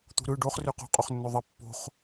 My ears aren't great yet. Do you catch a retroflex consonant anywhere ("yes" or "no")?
yes